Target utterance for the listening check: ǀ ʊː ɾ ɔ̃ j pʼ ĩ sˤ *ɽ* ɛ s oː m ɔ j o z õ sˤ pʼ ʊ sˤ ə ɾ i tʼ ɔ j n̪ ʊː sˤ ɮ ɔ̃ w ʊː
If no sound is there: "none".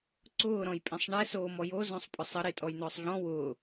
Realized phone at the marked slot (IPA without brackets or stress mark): ɳ